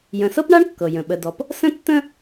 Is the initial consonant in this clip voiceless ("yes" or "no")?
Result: no